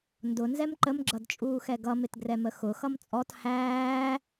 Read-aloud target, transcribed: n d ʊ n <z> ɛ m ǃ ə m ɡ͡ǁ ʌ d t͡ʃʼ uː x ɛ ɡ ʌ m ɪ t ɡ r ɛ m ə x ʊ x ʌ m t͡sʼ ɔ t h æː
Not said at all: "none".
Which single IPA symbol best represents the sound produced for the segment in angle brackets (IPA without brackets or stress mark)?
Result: z